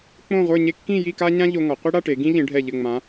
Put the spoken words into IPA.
k͡põ˥˧ʁʷə˞˥˧ɲe˥ kːĩ˥˧ji˥˧ ka˥ɲã˥ʎo˧ŋɒ˩˧ qʷi˥ɽa˥˧ʈe˩˧ ɡĩ˥ʎĩ˩˧ɖʱɛ˧˩ ʎɘ˧˩ŋ͡mã˩˧

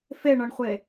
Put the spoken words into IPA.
feɳɒɳχʷe

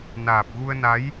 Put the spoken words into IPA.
naː˨˩p̚ ɣu˧ə̯na˨˦j

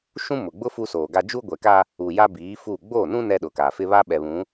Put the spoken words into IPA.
ʃũ˦mʊ˨ɡ͡bʊ˦ fu˦soː˨ɡa˦ d͡ʒu˦ɡʷɛ˨ka˦ | u˨ ja˦biː˨˦ fu˦˨ ɡ͡boː˦˨nũ˦ nɛ˦ɗʊ˨ka˨fɪ˦ βa˦ ɓɛ˨βũ˨˦

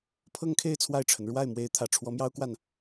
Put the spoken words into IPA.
pʰɤ˥˧ŋkʰe˥˧ɪ̯ t͡sʰwa˥˩ɪ̯ʈ͡ʂʰə˩n ɻwa˥˩ɪ̯ mwe˧˥ɪ̯t̪ʰä˨˩ʈ͡ʂʰwɔ˧˥ mjɑ˥ʊ̯kwa˥˩n

